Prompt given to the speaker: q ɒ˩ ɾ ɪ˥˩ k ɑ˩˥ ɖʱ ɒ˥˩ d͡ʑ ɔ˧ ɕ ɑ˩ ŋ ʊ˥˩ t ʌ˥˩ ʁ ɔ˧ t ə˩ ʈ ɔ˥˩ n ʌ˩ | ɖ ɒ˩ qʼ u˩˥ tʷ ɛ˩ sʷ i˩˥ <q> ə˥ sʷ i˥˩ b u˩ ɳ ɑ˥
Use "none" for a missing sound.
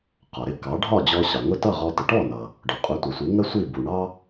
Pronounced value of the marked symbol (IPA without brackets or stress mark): ŋ